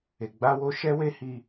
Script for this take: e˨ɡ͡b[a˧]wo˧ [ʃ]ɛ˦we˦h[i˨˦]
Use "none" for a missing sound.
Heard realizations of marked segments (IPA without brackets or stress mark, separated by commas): a˧, ʃ, i˧